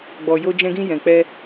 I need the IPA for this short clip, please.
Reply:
ɡ͡b ɔ˨ j o˧ d͡ʒ ɛ̃˧ ɡ ĩ˧ j ɛ̃˨ k͡p ɛ˧

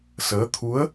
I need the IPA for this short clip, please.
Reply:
s əː˧˥ t̪ʰ u˧˥ ə̯

